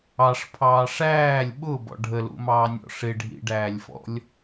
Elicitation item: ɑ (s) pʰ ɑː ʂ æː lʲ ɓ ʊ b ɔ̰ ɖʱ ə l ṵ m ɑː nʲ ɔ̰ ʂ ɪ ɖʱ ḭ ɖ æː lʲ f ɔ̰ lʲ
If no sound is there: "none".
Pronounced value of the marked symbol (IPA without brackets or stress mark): ʂ